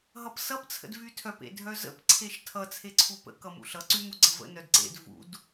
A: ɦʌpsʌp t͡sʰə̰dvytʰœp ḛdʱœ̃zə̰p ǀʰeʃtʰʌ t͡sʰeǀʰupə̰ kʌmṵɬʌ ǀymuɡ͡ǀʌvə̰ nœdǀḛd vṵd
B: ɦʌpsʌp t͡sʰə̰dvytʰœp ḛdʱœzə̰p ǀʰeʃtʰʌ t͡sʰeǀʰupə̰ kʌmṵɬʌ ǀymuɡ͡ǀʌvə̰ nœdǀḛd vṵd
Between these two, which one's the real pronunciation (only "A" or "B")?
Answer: B